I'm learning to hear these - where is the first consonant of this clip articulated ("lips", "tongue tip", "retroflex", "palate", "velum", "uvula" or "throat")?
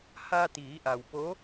throat